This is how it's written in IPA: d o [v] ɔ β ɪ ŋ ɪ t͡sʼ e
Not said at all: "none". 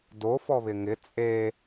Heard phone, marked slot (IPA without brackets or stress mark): f